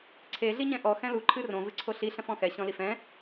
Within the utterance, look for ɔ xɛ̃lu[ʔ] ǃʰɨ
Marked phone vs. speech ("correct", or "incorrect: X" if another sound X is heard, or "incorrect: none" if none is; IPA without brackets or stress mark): incorrect: none